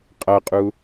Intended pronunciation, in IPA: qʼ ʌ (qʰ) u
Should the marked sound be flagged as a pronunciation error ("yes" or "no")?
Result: yes